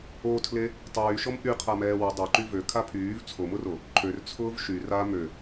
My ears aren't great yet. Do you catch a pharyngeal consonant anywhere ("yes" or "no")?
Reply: no